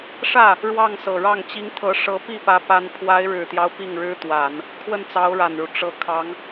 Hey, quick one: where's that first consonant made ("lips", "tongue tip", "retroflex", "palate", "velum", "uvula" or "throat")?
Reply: retroflex